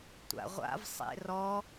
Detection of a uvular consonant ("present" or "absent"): present